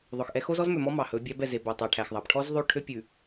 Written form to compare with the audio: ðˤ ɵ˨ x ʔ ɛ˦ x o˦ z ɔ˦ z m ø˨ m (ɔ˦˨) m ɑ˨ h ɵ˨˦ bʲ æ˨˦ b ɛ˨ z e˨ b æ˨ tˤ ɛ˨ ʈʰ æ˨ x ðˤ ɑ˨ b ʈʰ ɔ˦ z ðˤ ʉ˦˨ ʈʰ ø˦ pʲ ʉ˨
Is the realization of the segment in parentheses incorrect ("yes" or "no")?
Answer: yes